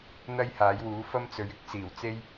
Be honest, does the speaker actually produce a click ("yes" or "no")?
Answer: no